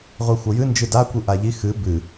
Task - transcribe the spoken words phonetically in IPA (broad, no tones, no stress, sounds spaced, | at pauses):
ʁʷ i xʷ ʌ j ɨ n d͡ʒ ɨ d a kʷ ɨ ʔ a ʎ i x ɨ b ɨ